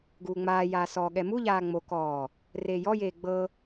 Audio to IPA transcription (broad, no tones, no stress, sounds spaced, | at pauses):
ɡ uː ŋ͡m aː j aː s ɔː ɠ ɛ m u ʎ aː ŋ͡m o k ɔː | r eː j ɔ j eː ɡ͡b ɤ